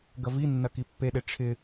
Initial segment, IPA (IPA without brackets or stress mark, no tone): ɡ